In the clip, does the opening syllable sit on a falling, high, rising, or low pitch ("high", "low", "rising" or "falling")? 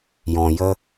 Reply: low